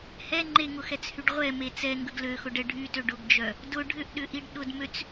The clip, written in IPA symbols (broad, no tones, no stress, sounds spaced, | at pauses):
h ɛ ŋ͡ǃ e ŋ ʊ x ɛ t͡s h y ɖ ʁʷ ɛ m e t͡s ɛ ŋ ɡ ə ɡ l ø x ʊ ɖ ɛ ɖʱ y t ø ɖ ʊ ɡ d͡ʒ œ | d ʊ ɖʱ ʏ ʔ ɗ ʏ ʔ i ɖ ɗ ʊ d m ø t͡s